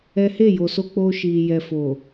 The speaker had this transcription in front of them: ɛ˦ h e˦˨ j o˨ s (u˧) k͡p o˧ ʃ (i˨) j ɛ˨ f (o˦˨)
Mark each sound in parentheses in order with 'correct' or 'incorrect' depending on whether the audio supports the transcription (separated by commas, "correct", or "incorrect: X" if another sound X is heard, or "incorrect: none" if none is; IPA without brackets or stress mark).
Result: incorrect: o˧, correct, incorrect: o˨